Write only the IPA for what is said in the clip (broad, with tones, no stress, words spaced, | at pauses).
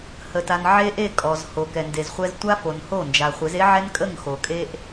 hə˨ta˨n ʕe˦ʔe˦˨kʼɔ˨z ho˨kɛ˨nde˨zχʷɛ˦z tʷa˦fo˨n ho˦˨nd͡ʒa˨ χʷe˨˦ze˦ ʕɛ˦nkʼə˦˨ŋ xo˨kʼe˦ʔ